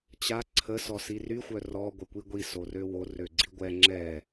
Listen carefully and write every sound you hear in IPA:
t͡ɕa ǀʰə sɔsiry xʷœrɔ ɡʷɛkʷiɡʷi sorøwo røɡ͡ǀiɡʷɛ ŋ͡ǁɛ

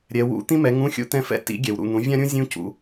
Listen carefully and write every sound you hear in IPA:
ɾʲɛ˨wṵ˧˥˧ t̪ĩ˥mɛ˨˥ŋũ˧˥˧ xʲṵ˧˥˧t̪ɛ̃˦˨fɛ̰˧˥˧ tḭ˨˥ ɡʲɛ˨wɾṵ˦˨n̪ũ˨˥ vʲã˥ɾʲũ˥ zʲũ˥cṵ˦˨

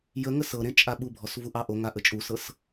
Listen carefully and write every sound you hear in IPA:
jə ŋəsɤɾẽ t͡ʃʼaɓubʱɔs vuʔɑʔoŋa ʔət͡ʃʼusɤs

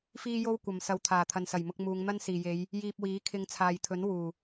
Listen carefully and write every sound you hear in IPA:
fiː˥jo˥w kʷɐ˨m sɐ˨wt̪ʰaː˨˩ t̪ʰɐ˨nsɐ˨˩jmʊ˧k̚ muː˨˧ŋn̪ɐ˥nsiː˨je˨˧j | jiː˧p̚wiː˨˥ kʰɪ˧ŋt͡sʰaː˨jt̪ʰɵ˨˥n wuː˨˩

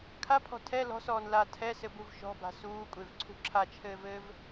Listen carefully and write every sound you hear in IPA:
kʰapʰɔ̤ tʰɛ lɔ̤sɔːn la tʰɛsɘbuv ʃɔ̤ba̤ suː kʷʼevǀʰṳ ǁʰat͡ʃʰɘːvɘːv

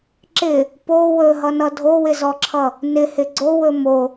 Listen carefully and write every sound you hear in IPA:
ǁɪ | po wɵɦʌnʌ dʱowɪzɔǁʰʌ | nɪhɪ ɡ͡ǀowɵ mo

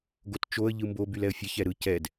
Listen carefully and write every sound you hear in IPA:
ɡott͡ʃoə̯ ʎɯmbo bylɛə̯fʲɛç ɛɾɯ cɛd

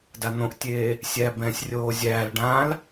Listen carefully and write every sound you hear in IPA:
dan̪õʔtʲeː | sʲæːbɛ̃ːsʲrʲoːzʲæːl ɖãl

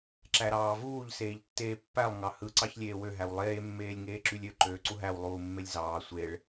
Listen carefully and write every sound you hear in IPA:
ǁæɾɑːvuːʎ seːʎtːeːpːælˠ ŋɑhɯ ǀɑçlʲeːwø ɦæwlˠeː mːeːlʲŋeːǁylʲø ǃøːǀuɦæw lˠuːmːelʲzɑː sʷeɭ

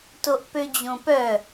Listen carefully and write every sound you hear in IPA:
toʔpød͡ʑõpœ

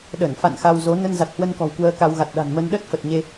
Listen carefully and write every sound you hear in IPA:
ɗə˧˩nfa̰˧˨n xa˧wzo˨˦ nə˧nza˨˩t̚hwə˧nkɔ̤˨˩w kwəː˧ka˧wɣa˨˩t̚ ɗa̤˨˩nmə˧nɗə˦˥t̚ fə˨˩t̚ ɲe˧

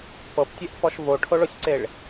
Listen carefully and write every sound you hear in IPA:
pɤptʲɛʔfɔʃ voʈʰoɭosʲǀeɭ

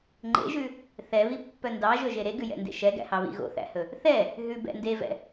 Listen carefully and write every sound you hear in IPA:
ŋ͡ǃḛʒʉ | θɛβipːœ ndɑʒɵʒe ɾeɡʉjɛ̰ndḛ ʃɛɡæ̰hɑβḭ ɣo̰θæ̰hɵ | θɛ | ɦʉbɛ̰ ndevɛ̰

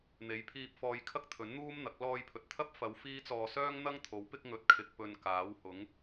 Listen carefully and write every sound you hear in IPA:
n̪e˨˥jpʰiː˧p̚fɔː˧j kʰɐ˥k̚t̪ʰɵ˨˥nn̪uː˥mn̪ɐ˨˥k̚ lɔː˧jpʰɵ˨t̚t̪ʰɐ˥p̚ fɐ˨˧w fiː˥t͡sɔː˧ sœː˥ŋn̪ɐ˥ŋt̪ʰo˨˥w pɪ˥k̚ ŋɵ˧t̚kʰɪ˧k̚pɵ˧nkaː˨˥w hʊ˨˥ŋ

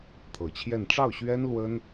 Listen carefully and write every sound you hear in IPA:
t̪ʰɤ˨˩t͡ɕʰjɛ˥˧n ʈ͡ʂɑ˥˩ʊ̯ɕɥɛ˥n lwə˥n

